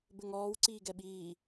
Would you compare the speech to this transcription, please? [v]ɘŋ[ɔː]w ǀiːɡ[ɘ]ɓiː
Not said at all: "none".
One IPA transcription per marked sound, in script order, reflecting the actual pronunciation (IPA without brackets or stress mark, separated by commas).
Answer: b, ɔː, ɛ